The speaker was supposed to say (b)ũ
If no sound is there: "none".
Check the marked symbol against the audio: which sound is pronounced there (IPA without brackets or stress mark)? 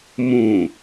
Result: m